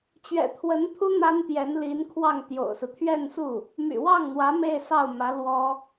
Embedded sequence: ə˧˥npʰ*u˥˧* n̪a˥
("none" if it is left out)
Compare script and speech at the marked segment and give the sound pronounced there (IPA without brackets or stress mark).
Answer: u˥